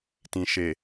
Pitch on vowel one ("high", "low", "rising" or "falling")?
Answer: low